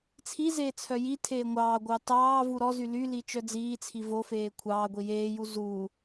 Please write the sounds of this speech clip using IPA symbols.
t͡sʰizeː t͡sʰœjitʰeː ŋʷɑːɡʷɑ tɑː vuɾɔzy lyli t͡ʃœd͡ziːt͡sʰi vofeː kʷʰɑːɡʷi jeːju zu

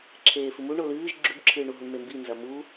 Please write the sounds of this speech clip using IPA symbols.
ǁʰeːfɨmu ɳolɨːʒ ɡ͡ǁʉbǁʰɨːɳu ɦuɳmembinzɐ mu

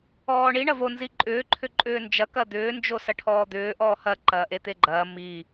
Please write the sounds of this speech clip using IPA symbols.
ɔːɳi ɳɐvo nziǃʼʏː ǃʰʏǃʼʏːnd͡ʒɐ kɐd̪ʏː nd͡ʒosɐʈʰɔːd̪ʏː ʔɔːhɐ ǃɐːʔet̪eɡ͡ǃɐː mi

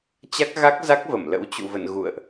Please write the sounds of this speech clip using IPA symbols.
t͡ɕa˦˥k̚ɣa˦˥k̚za˦˥k̚və˧˩m lə̰˧˥wt͡ɕṵ˧˨və̰˧˨n ɣṵ˧˨ə̯ʔ

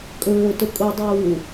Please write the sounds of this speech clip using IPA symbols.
kʼɵːtʊ kʼʊdˤuː

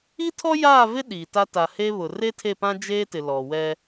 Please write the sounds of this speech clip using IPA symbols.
i˦tʰɔ˦ jaː˦˨vɪ˦ ɗiː˨ta˦ ta˨he˦βʊ˨ re˦tʰe˦˨pã˦ d͡ʒeː˦tɪ˨ lɔ˨ wɛ˦

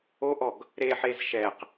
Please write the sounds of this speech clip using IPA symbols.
oʔɔɡ | ɾeħez ʃɛq

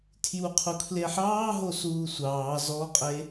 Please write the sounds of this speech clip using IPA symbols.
tʰjuqʰukʰleħɑː ɦosuːsʷɑː zɔqʼe

